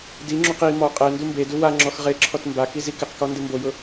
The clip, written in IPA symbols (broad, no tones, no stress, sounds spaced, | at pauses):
d i ŋ͡ǁ u q i m ɔ qʼ ɛ n d u m b e d u w a ŋ͡ǁ ɔ x ʁ e ǁʰ ɔ t m b a k i z i k ɪ q k ɔ n d ɪ m b o j ʊ